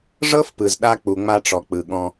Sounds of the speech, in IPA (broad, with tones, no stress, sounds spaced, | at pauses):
ʐ ɤ˦ f p ɯ˨ z ɗ a˧ k͡p u˨ ŋ͡m a˧ ʈ͡ʂ ɔ˨ k͡p ɯ˨ ɠ ɔ̃˧